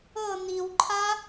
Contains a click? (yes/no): yes